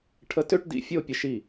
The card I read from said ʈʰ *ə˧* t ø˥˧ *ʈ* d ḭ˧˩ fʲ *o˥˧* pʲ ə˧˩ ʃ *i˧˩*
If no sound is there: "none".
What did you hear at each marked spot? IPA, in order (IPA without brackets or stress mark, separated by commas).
ə˧, ʈ, o˥˧, i˧˩